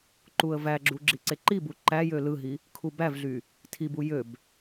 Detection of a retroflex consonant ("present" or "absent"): absent